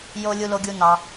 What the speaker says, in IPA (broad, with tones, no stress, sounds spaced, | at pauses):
j o˧ lʲ u˧ l o˧ ɡʲ u˧ n ɑ˧